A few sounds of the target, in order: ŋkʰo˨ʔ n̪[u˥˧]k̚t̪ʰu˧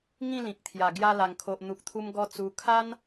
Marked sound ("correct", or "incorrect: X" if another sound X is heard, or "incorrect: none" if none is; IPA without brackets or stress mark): incorrect: u˨